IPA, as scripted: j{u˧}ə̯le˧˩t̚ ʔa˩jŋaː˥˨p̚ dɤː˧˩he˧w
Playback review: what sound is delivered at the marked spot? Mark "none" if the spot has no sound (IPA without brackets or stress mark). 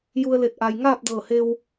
u˧